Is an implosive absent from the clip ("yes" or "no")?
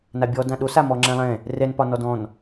no